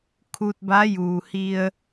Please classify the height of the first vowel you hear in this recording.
high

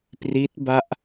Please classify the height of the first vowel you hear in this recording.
high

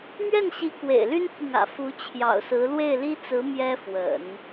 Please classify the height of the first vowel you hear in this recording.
mid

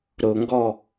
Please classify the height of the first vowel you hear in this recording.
high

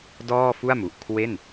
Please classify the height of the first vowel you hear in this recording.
mid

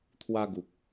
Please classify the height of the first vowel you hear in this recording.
low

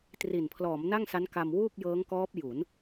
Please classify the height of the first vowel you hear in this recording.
high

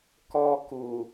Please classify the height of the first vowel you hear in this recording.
mid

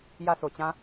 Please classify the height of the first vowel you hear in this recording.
low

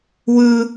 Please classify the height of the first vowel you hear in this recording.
high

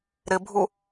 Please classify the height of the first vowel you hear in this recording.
high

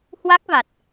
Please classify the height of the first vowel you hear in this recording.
low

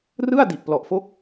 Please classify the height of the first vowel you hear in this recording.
high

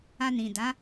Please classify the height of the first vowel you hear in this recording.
low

